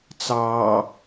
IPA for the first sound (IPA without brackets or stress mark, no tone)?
t͡s